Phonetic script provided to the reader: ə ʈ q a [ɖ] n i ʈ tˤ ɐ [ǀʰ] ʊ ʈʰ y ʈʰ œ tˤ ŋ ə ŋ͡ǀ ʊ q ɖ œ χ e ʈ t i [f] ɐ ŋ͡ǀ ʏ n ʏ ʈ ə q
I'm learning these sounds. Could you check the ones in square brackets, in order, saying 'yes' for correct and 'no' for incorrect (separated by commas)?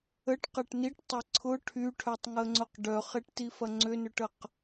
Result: no, yes, yes